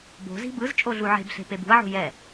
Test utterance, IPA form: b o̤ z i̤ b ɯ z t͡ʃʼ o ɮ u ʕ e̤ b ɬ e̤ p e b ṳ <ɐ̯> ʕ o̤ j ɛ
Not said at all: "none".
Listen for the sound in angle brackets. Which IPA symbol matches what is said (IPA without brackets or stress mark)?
ɐ̯